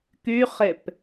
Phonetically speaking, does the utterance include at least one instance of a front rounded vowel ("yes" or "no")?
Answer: yes